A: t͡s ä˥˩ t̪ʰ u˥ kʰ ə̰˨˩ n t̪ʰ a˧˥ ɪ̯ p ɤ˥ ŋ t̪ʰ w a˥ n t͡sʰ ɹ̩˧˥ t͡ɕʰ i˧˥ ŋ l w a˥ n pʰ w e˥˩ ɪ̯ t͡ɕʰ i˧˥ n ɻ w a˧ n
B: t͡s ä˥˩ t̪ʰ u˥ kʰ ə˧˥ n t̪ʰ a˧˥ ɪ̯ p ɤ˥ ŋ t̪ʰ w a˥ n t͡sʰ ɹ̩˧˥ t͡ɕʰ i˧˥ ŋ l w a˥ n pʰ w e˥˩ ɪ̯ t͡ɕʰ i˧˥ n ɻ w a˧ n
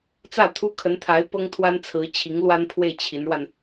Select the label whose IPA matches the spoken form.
B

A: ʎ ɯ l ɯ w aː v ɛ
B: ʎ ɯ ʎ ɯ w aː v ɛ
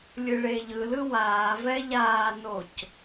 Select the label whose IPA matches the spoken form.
A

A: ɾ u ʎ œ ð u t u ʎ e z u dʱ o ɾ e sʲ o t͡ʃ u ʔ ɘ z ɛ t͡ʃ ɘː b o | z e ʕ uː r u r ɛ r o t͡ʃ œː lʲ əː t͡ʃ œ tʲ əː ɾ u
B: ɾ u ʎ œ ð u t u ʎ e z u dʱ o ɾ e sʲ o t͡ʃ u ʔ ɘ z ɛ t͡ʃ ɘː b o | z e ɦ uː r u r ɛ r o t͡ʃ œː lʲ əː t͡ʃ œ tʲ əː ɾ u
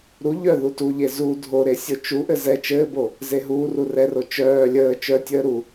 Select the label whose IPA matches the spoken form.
B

